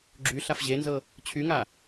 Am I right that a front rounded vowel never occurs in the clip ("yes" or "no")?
no